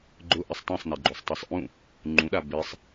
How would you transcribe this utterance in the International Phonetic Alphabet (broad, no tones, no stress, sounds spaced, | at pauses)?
ɡ͡ǃ ʊ ʔ ɪ sˤ tˤ ẽ sˤ n ɛ ɡ͡ǃ o sˤ tˤ i sˤ ʔ ũ | ŋ͡ǃ ũ ɗ a b ɪ sˤ